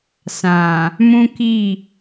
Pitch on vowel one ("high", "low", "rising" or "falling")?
low